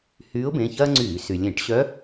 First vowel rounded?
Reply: yes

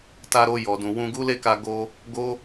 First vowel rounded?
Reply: no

